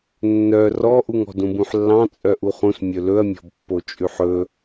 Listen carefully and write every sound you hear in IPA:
nː œ r ɔ ʔ u ŋ ɔ̤ d ũ b ũ ħ lː ɑ̃ t͡sʼ œ ʔ u χ ũ s mʲ ɵ l ɵ ɐ̯ mʲ ɔ̤ b pː o t͡ʃʼ ʉ ħ ɵ

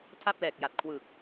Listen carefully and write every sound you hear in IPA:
tʰ a˥˩ p̚ l ɛː˨˩ k̚ j a˨˩ t̚ kʰ w ɯ˨˩ k̚

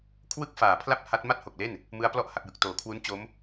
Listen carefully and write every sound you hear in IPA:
kʰ w ɯ˥˩ k̚ f aː˨˩ pʰ l a˥˩ p̚ h a˦˥ t̚ m a˥˩ t̚ h o˨˩ k̚ l e˥˩ n | m ɯ˦˥ a̯ p l ɔ˥˩ ʔ h a˨˩ k̚ j ɯ˨˩ k̚ t oː˩˦ kʰ w u˦˥ n t͡ɕ o˦˥ m

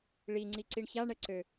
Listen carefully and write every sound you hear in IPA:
ɭ i ŋ͡ǀ i ǀ i ɳ ç a ɳ ɛ ǀ ø

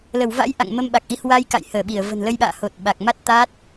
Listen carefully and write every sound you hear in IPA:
l ə˧˩ w v a̰˧˥ j ʔ a̰˧˨ ŋ m ə˧ m ɓ a˨˩ k̚ ʔ i˨˦ h w a˧ j k a̰˧˨ j h əː˧˩ ɓ i˧˩ ə̯ v ə̤˨˩ n l ə˧ j ɓ a̰ː˧˨ h o˨˩ t̚ ɓ a˨˩ k̚ m a˦˥ t̚ t̪ a˦˥ t̚

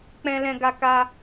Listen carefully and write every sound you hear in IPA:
k͡p ɛ̃˧ l ɛ̃˧ ɡ a˧ k a˧

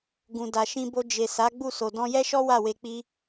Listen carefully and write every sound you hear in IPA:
ɡ ũ˨ d a˨ ʃ ĩ˧ b o˧ d͡ʒ e˨ s a˨˦ ɡ͡b u˦˨ s o˨ d ɔ̃˧ j ɛ˦ ʃ ɔ˦ w a˦˨ w e˧ k͡p i˦

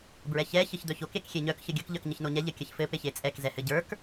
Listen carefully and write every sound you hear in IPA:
b ɹ ɛ ç ɛ ç ɘ ç d̪ œ ç o k e k xʲ e ɲ œ k ç ə ɡʲ ə k ʎ œ k ɲ ə ç n o ɲ ɛ ʎ ɘ kʲ ə ç f ɘ p e ç e t͡sʼ ɛ k z ɛ h ɘ ɟ ə˞ k

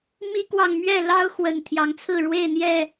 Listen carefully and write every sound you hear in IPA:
m i˦ k w ɑ˨ ŋ m ɥ ɛ˥˨ l ɑ˦ ʊ̯ x w ə˨˩ n t̪ʰ j ɑ˨˦ ŋ t͡sʰ ɹ̩˥˨ ɻ w e˥˨ ɪ̯ n̪ j ɛ˥˨

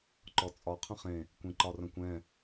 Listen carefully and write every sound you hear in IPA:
ǃ ɔ t͡sʼ ɒ qʰ ə̃ χ ẽ | kʷ ẽ ǃ ɒ r ə̃ kʷ ɛ̃

